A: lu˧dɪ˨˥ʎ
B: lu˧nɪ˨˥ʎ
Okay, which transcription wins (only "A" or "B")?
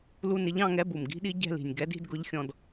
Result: B